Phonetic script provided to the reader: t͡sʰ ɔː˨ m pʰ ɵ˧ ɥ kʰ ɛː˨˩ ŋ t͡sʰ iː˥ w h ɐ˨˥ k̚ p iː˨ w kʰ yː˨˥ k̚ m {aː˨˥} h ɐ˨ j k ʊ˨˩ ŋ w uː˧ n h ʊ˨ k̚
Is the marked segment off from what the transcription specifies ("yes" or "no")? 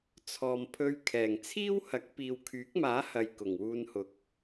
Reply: no